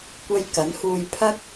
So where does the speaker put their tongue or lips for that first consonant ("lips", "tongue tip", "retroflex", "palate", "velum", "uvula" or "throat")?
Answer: velum